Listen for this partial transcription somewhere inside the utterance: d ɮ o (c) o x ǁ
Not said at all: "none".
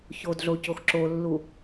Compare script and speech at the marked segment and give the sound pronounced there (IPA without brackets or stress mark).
c